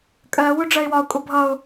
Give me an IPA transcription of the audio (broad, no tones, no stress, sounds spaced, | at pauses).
kʼ ɜ w ʊ ɖ͡ʐ ɜ ɪ̯ w ɒ ʊ̯ kʼ ʊ bʱ ʌ ʊ̯